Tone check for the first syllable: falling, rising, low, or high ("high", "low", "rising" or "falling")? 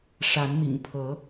rising